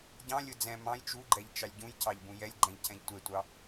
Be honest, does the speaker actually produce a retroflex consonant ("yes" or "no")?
no